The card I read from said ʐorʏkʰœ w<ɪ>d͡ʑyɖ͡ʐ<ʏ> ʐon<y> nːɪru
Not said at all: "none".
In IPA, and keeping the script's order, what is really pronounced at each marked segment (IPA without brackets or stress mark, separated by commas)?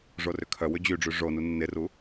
ʏ, y, u